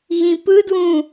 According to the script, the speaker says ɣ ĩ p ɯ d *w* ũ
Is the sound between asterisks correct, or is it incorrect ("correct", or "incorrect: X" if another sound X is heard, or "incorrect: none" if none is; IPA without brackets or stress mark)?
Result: correct